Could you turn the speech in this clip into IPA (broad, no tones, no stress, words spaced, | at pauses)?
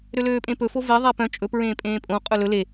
ɾøløːpʼẽpɵ fove ðˤɛpœ̃ t͡ʃʼɵ pɹẽːpʼẽːpʼõ qʼɵlɵ le